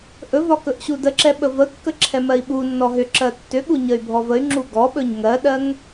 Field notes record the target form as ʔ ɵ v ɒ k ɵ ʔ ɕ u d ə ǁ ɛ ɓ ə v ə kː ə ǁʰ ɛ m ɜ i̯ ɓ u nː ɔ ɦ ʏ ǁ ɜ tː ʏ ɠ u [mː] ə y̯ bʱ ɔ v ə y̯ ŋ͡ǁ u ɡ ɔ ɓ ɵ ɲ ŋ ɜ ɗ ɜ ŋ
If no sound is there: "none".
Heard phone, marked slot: ɲ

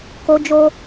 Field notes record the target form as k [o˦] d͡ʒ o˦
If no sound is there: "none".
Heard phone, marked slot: o˦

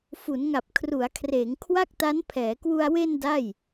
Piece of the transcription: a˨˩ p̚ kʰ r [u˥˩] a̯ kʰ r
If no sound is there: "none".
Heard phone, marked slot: u˩˦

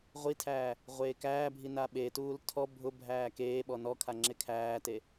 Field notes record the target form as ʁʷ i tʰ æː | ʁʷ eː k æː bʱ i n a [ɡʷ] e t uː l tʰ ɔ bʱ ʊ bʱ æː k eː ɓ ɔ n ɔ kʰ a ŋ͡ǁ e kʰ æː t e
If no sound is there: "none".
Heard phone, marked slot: ɓ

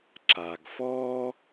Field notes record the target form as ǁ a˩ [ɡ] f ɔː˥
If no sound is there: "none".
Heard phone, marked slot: ɡ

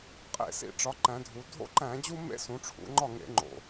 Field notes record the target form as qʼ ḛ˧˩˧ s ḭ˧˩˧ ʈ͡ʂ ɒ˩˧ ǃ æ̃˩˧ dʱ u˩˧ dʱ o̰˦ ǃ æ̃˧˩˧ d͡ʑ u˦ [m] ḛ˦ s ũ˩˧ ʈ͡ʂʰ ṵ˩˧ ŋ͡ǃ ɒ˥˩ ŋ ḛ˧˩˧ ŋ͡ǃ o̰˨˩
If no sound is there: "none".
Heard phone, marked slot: m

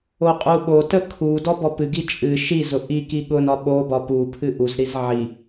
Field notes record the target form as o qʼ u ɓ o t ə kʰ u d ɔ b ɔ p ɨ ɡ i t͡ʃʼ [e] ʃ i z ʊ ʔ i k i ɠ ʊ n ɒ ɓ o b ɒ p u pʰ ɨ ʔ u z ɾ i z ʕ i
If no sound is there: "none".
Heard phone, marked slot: ɨ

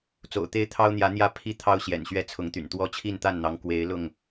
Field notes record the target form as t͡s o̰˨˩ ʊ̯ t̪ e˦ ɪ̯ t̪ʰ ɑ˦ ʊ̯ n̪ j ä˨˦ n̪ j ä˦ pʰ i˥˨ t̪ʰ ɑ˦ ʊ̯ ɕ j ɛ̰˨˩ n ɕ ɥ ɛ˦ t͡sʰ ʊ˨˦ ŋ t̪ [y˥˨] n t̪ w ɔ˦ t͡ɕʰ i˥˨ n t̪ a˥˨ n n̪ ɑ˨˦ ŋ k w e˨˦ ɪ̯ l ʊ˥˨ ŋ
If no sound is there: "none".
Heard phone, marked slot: y̰˨˩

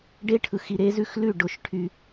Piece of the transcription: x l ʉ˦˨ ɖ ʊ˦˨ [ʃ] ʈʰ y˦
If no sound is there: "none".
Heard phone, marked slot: ʃ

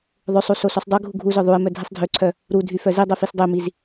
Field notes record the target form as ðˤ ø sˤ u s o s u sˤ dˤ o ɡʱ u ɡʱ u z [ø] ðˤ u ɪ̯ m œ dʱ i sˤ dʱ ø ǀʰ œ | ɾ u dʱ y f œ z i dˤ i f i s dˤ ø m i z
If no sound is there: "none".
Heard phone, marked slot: œ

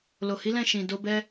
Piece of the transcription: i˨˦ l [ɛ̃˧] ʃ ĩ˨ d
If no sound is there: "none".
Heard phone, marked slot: ɛ̃˦˨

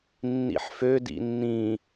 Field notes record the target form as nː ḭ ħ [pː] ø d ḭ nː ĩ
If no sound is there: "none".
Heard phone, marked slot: f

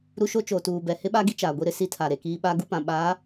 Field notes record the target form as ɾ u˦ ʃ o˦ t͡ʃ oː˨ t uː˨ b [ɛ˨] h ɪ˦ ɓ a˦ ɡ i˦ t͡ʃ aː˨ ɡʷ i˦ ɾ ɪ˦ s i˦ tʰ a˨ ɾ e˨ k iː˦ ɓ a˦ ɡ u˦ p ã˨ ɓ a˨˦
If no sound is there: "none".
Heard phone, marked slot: ɛ˨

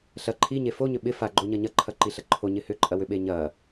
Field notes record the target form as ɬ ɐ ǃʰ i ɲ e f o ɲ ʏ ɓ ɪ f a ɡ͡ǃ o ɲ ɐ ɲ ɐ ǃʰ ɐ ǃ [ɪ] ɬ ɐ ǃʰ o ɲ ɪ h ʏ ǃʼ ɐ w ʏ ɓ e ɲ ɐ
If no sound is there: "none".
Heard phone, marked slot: i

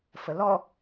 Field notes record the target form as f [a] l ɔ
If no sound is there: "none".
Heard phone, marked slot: ə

